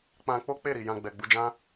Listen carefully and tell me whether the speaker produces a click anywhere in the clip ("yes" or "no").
no